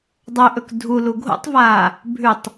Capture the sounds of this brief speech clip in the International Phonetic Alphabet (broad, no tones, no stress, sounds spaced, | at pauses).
dˤ ɵ ʔ ɵ k dʱ u l u ɡʱ o̰ tˤ v aː | bʱ ʉ tˤ